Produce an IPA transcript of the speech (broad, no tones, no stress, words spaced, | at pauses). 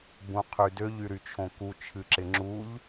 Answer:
bũqʰydøʎ yɾyt͡ʃʰõku t͡ʃʰɨǁɪŋ͡ǁuʎ